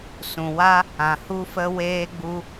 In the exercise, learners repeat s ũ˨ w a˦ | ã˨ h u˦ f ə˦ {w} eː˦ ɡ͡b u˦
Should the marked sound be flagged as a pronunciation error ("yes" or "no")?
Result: no